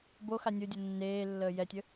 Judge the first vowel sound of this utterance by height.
mid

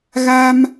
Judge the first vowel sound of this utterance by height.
low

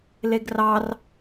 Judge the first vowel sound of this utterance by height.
mid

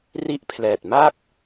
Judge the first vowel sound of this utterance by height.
high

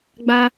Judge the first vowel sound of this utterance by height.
low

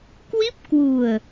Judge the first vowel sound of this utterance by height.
high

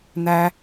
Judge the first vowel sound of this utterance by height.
low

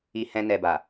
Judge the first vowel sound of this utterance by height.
high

